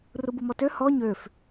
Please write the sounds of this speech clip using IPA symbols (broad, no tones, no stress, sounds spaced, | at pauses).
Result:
r u b u m ɔ t ø h ɔ ɲ ø f